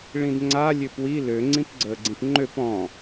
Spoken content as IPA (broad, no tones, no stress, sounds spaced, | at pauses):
ɭ ĩ d ŋ͡ǀ a lʲ ø p w i l ø ŋ͡ǀ ĩ p ɡ͡ǀ əː ɡ͡ǀ ĩ p ŋ͡ǃ ø p ɔ̃